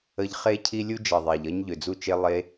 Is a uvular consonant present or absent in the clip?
present